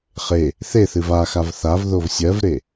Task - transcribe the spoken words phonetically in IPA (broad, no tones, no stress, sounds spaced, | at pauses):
χ e | θ e θ ɨ v a x a v θ a v ð o v sʲ ɜ v ɾ e